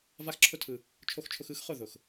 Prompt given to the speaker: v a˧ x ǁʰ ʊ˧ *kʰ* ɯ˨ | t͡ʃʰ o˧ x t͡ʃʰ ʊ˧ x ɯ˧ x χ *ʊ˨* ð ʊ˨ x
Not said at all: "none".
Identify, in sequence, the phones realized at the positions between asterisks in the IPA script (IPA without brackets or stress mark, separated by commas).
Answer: tʰ, ʊ˦˨